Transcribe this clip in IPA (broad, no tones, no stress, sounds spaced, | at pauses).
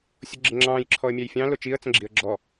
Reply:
sʲ ʊ ɡ͡ǁ ɪ ŋ͡ǁ ɑ̃ː j ǁʰ ɔ ə̯ mʲ æ j fʲ ɑ̃ l ʊ t͡ʃ i ə̯ t͡s ə̃ ɡ͡ǁ i ə̯ ɡ͡ǁ ɔ